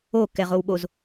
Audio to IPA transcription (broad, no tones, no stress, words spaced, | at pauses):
o kɛʁowɓoz